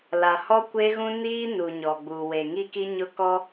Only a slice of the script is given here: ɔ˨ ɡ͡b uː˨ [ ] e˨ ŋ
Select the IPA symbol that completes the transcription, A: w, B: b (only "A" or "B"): A